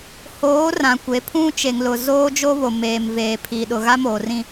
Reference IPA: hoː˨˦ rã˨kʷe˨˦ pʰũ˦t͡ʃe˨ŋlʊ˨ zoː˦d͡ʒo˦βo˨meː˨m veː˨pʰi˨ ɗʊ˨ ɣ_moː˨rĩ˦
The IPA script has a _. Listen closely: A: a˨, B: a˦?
B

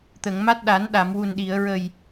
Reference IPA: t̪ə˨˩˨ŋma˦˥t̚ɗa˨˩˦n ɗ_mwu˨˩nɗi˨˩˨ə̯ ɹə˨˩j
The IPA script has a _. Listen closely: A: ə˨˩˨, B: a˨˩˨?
B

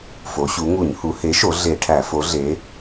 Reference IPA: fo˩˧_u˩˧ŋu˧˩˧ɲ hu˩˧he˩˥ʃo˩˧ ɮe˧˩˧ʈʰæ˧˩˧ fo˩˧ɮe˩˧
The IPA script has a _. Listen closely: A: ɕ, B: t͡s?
A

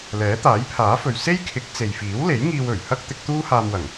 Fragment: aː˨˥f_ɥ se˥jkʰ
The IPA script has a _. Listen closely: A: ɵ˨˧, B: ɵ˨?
B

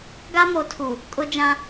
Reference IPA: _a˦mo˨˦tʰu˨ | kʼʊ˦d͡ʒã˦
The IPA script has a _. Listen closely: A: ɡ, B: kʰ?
A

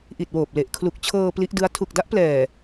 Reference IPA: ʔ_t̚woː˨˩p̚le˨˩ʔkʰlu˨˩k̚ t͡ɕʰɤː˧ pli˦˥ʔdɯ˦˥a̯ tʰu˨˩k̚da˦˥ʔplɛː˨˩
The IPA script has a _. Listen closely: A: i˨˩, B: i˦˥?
A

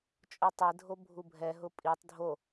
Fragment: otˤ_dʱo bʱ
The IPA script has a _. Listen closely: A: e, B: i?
A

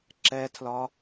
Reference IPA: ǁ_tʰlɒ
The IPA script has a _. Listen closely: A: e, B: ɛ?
B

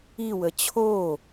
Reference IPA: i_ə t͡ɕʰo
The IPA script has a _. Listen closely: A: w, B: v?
A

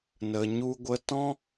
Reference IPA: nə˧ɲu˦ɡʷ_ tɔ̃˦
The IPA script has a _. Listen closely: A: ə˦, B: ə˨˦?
A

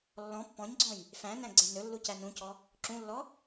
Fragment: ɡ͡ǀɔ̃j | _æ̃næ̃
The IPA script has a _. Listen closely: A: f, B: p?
A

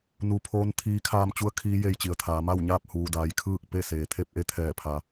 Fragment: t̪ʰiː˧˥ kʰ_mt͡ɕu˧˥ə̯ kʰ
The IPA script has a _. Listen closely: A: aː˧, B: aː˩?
A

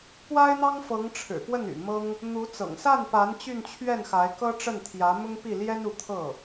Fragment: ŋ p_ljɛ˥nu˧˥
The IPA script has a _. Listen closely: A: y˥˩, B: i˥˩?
B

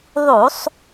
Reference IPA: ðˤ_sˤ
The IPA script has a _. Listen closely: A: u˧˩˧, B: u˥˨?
A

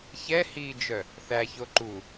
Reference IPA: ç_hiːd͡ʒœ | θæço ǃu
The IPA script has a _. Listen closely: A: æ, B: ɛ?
B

